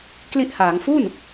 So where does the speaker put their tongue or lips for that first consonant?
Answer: velum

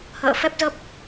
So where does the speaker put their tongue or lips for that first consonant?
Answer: throat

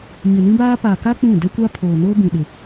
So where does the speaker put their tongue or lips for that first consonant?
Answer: palate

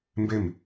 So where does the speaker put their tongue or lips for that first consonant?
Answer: lips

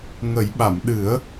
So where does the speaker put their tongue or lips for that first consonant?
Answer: velum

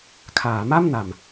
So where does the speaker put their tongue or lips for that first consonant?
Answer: velum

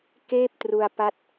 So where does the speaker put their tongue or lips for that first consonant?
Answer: velum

